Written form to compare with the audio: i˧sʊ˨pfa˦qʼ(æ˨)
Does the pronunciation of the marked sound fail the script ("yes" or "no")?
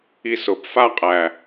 no